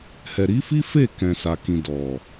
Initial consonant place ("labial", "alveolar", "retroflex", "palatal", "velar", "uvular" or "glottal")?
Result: glottal